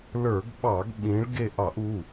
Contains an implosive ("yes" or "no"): yes